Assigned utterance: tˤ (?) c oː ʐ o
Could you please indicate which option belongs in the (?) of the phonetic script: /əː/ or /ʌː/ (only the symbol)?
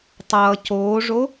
ʌː